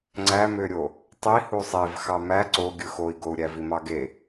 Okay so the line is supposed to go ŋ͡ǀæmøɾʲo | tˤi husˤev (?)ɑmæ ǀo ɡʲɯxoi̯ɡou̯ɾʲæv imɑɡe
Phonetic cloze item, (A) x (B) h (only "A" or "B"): A